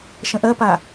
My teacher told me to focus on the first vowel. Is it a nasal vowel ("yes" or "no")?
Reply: yes